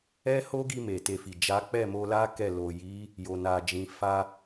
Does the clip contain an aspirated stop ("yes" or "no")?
no